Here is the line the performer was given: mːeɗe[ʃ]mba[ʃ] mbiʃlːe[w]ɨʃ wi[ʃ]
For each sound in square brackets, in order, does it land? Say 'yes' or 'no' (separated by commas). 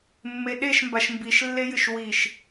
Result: yes, yes, no, yes